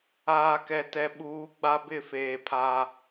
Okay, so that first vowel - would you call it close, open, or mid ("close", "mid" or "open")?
open